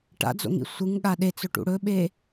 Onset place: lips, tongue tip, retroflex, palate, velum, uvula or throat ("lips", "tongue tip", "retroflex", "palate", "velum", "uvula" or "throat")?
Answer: retroflex